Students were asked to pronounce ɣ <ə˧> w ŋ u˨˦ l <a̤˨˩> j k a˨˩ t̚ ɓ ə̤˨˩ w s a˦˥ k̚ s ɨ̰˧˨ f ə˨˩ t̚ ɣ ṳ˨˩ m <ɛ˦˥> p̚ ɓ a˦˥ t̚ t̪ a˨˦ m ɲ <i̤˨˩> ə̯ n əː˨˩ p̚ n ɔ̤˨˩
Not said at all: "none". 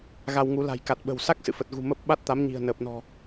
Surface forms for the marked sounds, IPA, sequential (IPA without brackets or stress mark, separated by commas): a˧, a̤˨˩, ə˦˥, i̤˨˩